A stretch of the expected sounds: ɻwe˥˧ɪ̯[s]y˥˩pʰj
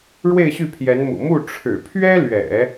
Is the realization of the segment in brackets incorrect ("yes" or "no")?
yes